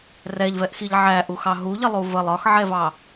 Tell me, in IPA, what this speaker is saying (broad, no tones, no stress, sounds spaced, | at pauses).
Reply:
r ɛ ʎ v ɛ ʔ x i ʎ ʕ æ ʔ u x ɑ ɦ u ʎ ɪ lˠ u v ə lˠ ɒ x ʕ ɛ v ɑ